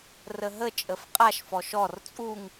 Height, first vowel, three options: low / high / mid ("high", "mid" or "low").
mid